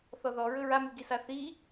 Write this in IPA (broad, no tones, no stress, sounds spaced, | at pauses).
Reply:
θ ɔ ð ɔ ɹ ɵ ɹ a m y ɡ i s a θ i